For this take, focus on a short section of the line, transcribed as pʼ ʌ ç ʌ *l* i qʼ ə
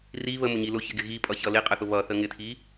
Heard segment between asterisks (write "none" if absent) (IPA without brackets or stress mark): l